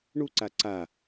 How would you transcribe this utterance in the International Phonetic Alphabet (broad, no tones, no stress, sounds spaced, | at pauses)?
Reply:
ɳ u ǀ a ǀ a